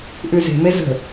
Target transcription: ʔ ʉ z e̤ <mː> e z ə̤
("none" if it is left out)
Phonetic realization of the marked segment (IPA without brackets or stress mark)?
m